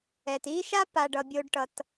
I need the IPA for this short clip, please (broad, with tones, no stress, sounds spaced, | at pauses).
ɛ˩ t i˥ ʃ a˥ p a˨ ɖ ʌ˨ bʲ o˦ ɖ ʈ ʌ˨ t